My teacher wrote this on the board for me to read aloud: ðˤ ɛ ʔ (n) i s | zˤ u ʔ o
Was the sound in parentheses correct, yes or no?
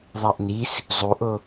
yes